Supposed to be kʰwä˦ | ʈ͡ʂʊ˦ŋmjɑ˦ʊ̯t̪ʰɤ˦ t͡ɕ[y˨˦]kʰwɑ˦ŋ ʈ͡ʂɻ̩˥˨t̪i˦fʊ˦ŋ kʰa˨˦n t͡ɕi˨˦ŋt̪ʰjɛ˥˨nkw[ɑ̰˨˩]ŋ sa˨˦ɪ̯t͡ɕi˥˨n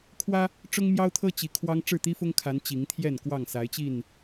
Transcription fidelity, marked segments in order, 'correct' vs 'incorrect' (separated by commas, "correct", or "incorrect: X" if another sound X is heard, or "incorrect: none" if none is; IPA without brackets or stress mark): incorrect: i˨˦, incorrect: ɑ˥˨